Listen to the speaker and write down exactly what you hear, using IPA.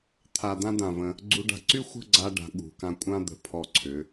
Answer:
t̪ʰ a˧ d̪ ã˥ d̪ ã˧˩ v ə̃˧ | ɡ͡ǀ u˧ ɖ a̤˧ ǀ y˥ xʷ ə̤˥˧ ɡ͡ǀ a˧ ɖ a̤˩˧ ɠ ṳ˩˧ k ã˧ kʷʼ ã˥ d̪ ə̤˧˩ pʰ ɔ˧˩ ǀʰ ʏ˩˧

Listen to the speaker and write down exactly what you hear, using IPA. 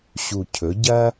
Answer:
ɕ u˨˩ cʰ ɵ˩˧ ɟ ɐ˦

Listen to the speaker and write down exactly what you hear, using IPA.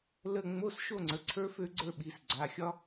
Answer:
l ə˥˧ ŋ͡m o˧˥˧ s ʃ o˥˧ ŋ͡ǀ ə˩˧˩ ǀʰ ə˞˥ f ø˥ ɡ͡ǀ ə˞˥˧ ɓ i˩˧˩ s ɡ͡ǀ a˩˧˩ xʲ ɒ˥

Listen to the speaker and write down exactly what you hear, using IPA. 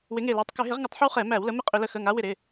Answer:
w ɪ˨˦ ŋ e˧˩ l e˩˧˩ tˤ k ʏ˧˩˧ ɦ ɪ˨˦ ʁ ŋ ʏ˧˩˧ tˤ ħ ə˦ w χ ɛ˧˩˧ m æ˧˩˧ w l ə˨˦ m ɪ˦ qʼ ʏ˧˩˧ l ə˨˦ x ə˩˧˩ ŋ a˨˦ w ɪ˧˩ ɾ ɪ˩˧˩

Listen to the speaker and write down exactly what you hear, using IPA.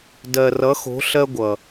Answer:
d ɜ˨ r ʌ˨˦ x o̤˨˦ ɬ ɜ˦ ɡʷ ʌ˨

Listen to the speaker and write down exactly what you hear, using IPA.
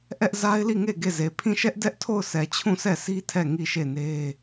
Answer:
ʔ ɛ˦ ʔ z a˦ ɪ̯ l i˦˨ ŋ e˦˨ ɡ e˦˨ z e˨ pʰ ĩ˦˨ ʃ ɛ˦ ʔ d ɛ˦ ʔ tʰ o˦˨ ʊ̯ sʰ ɛ˨ t͡ɕʰ ũ˦˨ sʰ ɛ˦˨ sʰ i˦ tʰ ɛ˦˨ ŋ i˦˨ ʃ e˦˨ n e˦

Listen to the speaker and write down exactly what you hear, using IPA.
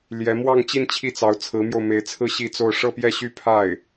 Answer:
l j ɛ˧˥ m w ɑ˥˧ ŋ t͡ɕ i˥˧ n t͡ɕʰ i˥˩ t͡s ɑ˧˥ ʊ̯ t͡sʰ ɹ̩˧˥ m j o˧ ʊ̯ m e˧˥ ɪ̯ t͡sʰ ɹ̩˥˧ ɕ i˥˧ t͡s o˥˧ ʊ̯ ʂ ɤ˥˧ p j ɛ˥˧ ɕ y˥˧ pʰ a˥˩ ɪ̯

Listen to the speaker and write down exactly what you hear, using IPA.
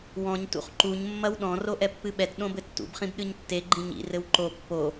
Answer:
w ɔ̃ ɲ t ṵ χ ǃ u ɲ mː ɐ w ɗ ɔ̃ r o ʔ ɛ pː ɨ ɓ ɛ t ɗ õ b ɘ tː ṵ b χ ĩ b ɗ ɨ ɲ tː e ɡ͡ǃ ĩ ɲ ḭ r ɘ w ǃ o pː o

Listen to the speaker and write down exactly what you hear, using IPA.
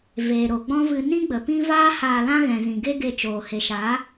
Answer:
v eː˨ ɾ o˨ ɡ͡b ɔ̃˦ v ɨ˧ n ĩ˦ ɡ͡b ə˨ p ĩ˦ v aː˦ h aː˧ l ã˦ ɣ ɛ̃˨ z ĩ˨ ɡ e˦ ɡ e˧ t͡ʃ oː˨ h e˨ ʃ a˨˦

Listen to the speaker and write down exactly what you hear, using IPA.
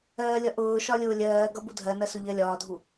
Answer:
ɜː lʲ ʌ ʔ ʊː ʃ ɒ lʲ ʊː lʲ ɜː ɡ ʌ b u dʱ ɜ n ɜ s ʊ ʎ ɜ lʲ ɒː dʱ u

